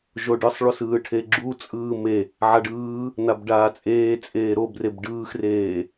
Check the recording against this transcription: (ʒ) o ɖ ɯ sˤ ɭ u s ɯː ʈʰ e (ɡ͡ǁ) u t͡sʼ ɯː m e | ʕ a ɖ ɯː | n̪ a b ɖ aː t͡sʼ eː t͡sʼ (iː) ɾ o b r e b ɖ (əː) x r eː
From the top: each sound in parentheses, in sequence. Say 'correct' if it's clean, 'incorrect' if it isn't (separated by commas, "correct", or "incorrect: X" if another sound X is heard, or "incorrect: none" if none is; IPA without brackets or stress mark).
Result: correct, correct, incorrect: eː, incorrect: ɯː